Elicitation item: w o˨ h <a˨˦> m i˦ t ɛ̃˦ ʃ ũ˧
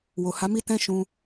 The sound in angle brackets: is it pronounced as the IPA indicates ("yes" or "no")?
yes